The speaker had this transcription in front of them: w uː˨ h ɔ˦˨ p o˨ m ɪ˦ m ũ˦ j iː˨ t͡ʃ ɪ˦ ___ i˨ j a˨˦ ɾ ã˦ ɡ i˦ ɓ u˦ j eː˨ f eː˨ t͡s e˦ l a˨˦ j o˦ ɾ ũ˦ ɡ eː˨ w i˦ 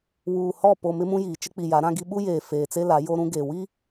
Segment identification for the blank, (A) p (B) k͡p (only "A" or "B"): B